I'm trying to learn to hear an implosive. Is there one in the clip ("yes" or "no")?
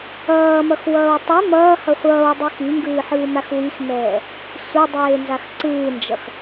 no